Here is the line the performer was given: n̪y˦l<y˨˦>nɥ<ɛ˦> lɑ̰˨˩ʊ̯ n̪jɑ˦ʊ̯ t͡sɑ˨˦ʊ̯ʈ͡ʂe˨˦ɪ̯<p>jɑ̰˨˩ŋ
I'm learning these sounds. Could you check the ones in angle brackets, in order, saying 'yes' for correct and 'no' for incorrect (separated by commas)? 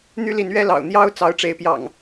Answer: no, yes, yes